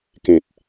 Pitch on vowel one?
low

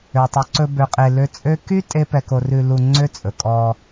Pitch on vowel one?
low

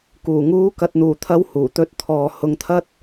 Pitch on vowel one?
low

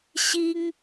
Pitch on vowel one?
high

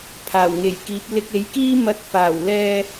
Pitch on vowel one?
low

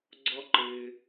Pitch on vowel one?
high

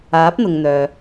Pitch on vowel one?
rising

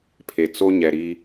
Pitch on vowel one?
low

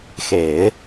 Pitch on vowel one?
low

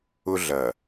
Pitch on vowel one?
high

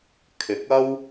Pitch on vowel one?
rising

